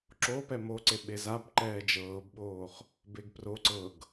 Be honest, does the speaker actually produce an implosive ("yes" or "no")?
yes